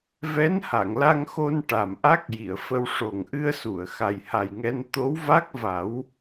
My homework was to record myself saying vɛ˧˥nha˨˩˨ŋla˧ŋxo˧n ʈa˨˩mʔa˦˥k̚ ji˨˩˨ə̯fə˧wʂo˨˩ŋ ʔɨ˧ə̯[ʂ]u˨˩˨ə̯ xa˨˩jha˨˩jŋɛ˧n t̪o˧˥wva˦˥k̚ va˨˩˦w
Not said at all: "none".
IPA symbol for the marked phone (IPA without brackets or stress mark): s